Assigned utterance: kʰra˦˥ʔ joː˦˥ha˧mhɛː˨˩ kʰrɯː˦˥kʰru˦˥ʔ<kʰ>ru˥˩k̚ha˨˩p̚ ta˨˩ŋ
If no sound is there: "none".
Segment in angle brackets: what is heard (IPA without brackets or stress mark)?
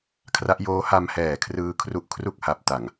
kʰ